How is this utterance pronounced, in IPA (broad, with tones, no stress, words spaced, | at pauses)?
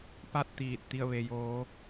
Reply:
pa˥˨t̚t̪iː˧˩t̚ t̪i˥˨ə̯ʋe˧joː˧˥